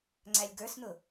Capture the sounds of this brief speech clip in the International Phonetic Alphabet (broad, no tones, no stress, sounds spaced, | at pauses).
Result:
ŋ͡ǀ æ lʲ ɡ ə˞ s n̪ ʊ